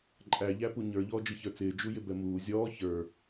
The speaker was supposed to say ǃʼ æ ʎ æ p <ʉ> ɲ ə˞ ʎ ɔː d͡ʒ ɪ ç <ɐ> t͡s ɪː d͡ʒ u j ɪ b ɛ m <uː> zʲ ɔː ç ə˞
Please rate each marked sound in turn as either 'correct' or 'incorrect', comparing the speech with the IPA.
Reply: incorrect: u, incorrect: ə˞, correct

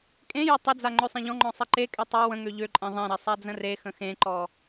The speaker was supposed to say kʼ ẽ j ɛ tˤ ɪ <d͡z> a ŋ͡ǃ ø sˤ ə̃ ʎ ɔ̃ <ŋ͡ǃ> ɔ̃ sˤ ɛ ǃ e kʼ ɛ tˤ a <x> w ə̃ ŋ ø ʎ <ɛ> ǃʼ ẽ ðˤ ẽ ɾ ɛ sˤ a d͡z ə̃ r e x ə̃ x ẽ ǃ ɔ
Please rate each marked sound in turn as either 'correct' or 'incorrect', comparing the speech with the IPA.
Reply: correct, correct, incorrect: none, incorrect: ø

